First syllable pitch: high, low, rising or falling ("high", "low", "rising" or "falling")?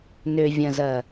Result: low